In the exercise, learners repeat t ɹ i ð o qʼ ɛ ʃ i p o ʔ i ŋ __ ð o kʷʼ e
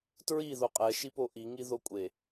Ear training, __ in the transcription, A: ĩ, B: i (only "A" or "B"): B